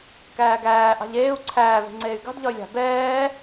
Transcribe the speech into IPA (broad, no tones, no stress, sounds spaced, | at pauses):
k æː ɡ æː ʔ ɑ̤ ʎ eː u̯ ǀʰ æː v e̤ ŋ͡ǀ eː y̯ ɡ ɑ̤ d ʎ ɒ y̯ lʲ ɑ̤ b ɛː